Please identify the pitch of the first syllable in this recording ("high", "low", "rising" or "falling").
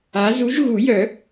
rising